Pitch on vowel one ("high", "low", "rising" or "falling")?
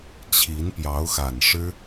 rising